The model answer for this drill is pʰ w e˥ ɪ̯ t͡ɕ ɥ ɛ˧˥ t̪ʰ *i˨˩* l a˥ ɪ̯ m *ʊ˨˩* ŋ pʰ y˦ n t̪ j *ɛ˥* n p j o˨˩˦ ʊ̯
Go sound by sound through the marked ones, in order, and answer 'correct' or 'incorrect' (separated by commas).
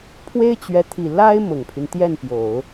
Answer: correct, correct, incorrect